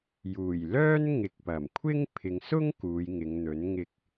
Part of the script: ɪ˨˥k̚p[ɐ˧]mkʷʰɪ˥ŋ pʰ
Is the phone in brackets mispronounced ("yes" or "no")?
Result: yes